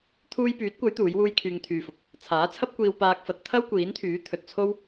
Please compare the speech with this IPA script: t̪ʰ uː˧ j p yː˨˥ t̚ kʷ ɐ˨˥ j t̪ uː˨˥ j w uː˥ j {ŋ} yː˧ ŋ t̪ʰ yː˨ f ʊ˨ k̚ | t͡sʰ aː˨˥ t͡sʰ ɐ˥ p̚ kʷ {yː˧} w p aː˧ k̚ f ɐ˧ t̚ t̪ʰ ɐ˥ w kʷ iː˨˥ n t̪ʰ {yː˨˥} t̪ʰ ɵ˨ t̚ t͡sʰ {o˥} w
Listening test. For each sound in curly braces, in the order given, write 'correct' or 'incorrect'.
incorrect, incorrect, correct, correct

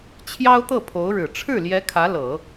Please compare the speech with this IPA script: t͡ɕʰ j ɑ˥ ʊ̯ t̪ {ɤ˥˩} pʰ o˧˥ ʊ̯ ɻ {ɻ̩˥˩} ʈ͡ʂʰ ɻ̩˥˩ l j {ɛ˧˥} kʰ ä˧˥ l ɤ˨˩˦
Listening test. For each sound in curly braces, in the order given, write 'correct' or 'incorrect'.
correct, incorrect, correct

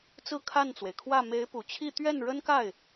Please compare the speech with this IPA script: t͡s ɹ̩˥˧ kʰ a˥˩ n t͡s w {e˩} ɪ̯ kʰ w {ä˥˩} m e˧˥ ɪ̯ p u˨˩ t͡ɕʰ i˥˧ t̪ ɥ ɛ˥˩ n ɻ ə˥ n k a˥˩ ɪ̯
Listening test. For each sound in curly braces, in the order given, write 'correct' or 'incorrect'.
correct, correct

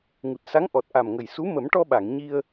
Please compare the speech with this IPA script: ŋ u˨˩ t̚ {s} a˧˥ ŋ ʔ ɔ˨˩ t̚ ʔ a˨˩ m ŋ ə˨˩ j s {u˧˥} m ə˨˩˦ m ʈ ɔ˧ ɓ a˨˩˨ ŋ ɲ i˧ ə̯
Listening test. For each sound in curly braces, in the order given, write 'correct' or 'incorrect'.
correct, correct

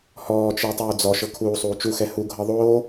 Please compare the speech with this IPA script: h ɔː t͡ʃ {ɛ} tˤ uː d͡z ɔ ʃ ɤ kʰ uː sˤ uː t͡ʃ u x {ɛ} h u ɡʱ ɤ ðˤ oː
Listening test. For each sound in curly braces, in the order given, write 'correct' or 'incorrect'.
correct, correct

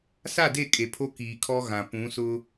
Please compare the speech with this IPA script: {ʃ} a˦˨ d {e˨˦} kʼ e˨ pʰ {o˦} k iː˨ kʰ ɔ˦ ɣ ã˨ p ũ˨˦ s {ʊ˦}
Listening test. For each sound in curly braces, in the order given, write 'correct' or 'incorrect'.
incorrect, incorrect, correct, correct

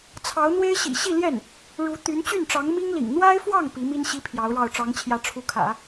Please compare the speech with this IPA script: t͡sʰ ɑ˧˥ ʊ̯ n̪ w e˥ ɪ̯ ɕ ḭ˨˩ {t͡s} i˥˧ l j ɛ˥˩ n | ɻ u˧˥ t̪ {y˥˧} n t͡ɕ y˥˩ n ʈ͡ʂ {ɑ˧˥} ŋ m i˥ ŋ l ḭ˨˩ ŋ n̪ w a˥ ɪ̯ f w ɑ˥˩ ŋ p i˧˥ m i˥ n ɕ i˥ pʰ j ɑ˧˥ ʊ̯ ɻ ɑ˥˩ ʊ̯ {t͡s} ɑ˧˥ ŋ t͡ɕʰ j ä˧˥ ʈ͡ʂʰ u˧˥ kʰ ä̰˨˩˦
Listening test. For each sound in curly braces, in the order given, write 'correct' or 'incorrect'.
incorrect, incorrect, correct, incorrect

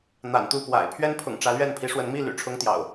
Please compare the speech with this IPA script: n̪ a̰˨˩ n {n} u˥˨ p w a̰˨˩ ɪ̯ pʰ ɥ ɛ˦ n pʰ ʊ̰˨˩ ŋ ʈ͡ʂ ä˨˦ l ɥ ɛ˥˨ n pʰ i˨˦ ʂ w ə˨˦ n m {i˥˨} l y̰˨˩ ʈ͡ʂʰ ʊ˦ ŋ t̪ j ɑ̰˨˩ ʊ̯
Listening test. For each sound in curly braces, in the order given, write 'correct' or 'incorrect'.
incorrect, correct

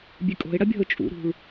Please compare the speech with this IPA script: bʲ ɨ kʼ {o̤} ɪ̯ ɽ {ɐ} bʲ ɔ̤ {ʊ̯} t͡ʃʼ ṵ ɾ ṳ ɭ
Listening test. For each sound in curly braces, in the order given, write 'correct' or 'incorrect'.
correct, correct, correct

